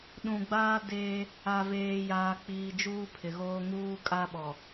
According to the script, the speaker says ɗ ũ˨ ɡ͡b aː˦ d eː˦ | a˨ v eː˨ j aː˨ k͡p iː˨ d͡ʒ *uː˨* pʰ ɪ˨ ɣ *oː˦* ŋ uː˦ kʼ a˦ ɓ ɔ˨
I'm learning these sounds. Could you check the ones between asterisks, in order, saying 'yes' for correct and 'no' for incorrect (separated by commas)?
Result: no, yes